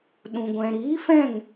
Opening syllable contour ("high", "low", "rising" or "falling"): low